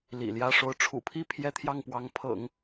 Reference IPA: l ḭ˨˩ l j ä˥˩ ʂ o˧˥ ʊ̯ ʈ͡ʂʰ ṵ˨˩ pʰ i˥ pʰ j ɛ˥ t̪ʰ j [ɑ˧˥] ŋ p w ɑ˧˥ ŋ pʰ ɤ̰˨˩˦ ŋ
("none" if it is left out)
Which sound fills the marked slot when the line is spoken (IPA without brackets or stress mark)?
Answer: ɑ˥˩